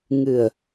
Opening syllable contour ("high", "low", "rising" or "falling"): low